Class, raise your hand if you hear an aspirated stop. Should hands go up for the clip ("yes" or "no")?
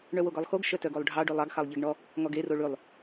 no